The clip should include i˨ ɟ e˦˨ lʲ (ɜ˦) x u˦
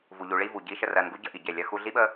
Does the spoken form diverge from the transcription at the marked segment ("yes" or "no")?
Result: no